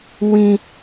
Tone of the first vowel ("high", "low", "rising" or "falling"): high